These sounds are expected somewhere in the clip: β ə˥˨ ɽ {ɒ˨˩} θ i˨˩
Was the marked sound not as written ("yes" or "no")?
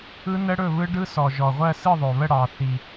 yes